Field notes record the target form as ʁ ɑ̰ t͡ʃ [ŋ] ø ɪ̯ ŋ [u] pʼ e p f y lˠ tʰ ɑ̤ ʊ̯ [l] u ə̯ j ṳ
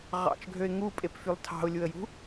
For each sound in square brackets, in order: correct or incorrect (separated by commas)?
incorrect, correct, incorrect